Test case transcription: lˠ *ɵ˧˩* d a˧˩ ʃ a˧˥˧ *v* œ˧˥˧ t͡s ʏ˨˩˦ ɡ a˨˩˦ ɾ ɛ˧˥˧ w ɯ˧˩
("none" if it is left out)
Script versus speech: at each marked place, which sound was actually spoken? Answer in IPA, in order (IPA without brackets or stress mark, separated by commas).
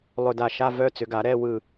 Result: ɵ˧˩, v